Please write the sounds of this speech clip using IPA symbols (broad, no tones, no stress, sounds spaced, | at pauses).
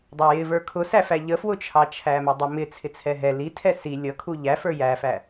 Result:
dˤ ɑ j ɪ v ə˞ kʰ ʊ s æ f æ ʎ ə f w ʊ t͡ʃʰ ɑ t͡ʃʰ æ m ɛ dˤ ə m ɪ t͡sʰ ɪ t͡sʰ ɛ ɦ ɛ l i tʰ ɛ s i lʲ ʌ kʰ u ʎ æ f ə˞ j æ f æ